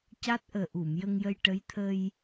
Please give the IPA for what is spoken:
ca˦˥t̚ʔəː˨˩ʔu˨˩˨m jə˧ŋjə˧j ʈə˧˥jt̪ʰə˧j

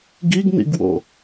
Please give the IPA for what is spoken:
ɡiɡnḭɡwo̰

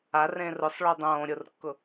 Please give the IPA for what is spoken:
arẽ rʊsˤɭo dˤõːɾʲʊrkːʊ

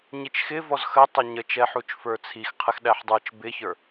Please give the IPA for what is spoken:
ɲit͡ʃxɪvɔz xə tˤʌɲət͡ʃɛ ħut͡ʃfə˞t͡sʰix qʰɪxɗæħdˤə˞t͡ʃ bɪçə˞

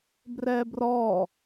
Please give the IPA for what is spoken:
brɛbrɔ

